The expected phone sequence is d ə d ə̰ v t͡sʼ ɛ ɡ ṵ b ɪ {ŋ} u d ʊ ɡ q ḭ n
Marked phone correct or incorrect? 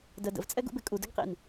incorrect